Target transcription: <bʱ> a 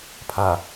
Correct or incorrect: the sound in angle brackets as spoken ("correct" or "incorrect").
incorrect